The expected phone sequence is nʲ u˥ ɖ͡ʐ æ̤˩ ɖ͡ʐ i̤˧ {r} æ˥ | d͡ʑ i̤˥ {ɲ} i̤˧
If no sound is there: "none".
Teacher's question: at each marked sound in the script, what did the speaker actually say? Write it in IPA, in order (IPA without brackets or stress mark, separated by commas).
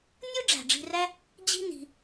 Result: r, n